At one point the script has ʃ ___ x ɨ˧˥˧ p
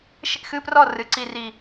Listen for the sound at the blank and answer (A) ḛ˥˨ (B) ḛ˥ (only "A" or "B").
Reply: B